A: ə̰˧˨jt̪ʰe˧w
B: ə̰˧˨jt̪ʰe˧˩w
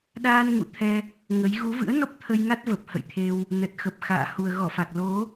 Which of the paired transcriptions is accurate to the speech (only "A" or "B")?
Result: A